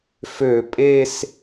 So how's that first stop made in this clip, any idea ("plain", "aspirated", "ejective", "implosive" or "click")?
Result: ejective